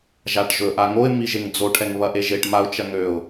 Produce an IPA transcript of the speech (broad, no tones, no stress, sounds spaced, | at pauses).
ʒ a ʈ ʒ ɵ ʔ a ŋ o ɪ̯ m i ʒ e ŋ d͡z o ʈʰ ɛ ŋ β ɐ ʔ e ʒ e ʈ m a ʊ̯ t͡ʃ ɐ ŋ ø ʊ̯